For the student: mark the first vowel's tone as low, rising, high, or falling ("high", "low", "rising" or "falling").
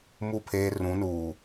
falling